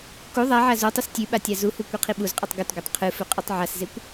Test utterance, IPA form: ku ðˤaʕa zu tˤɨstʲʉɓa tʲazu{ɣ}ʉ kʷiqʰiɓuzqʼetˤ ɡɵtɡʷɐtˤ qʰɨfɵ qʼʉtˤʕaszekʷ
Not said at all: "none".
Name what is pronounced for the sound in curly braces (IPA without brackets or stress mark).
h